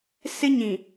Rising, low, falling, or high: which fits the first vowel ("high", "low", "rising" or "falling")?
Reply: high